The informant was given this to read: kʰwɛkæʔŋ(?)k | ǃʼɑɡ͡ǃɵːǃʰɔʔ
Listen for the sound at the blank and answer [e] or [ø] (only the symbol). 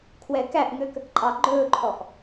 ø